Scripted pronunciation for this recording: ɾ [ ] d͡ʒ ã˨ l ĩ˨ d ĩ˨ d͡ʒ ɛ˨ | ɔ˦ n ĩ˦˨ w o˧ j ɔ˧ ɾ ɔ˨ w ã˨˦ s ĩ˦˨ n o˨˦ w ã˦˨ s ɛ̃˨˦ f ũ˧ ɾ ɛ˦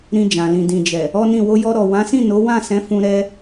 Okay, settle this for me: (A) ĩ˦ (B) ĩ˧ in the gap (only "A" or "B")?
B